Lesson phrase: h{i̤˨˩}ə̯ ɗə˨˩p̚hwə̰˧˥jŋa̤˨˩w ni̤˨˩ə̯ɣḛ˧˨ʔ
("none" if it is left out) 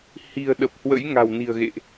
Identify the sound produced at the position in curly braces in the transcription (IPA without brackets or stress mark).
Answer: i̤˨˩